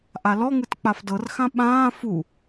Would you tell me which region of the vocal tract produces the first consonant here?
throat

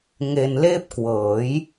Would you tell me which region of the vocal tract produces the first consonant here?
velum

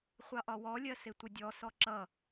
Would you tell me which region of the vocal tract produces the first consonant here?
uvula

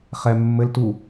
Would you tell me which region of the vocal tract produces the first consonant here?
uvula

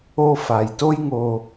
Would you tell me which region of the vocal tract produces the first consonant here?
lips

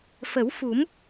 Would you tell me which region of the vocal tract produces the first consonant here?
lips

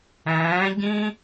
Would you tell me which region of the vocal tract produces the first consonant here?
palate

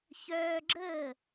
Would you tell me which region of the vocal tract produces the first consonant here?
palate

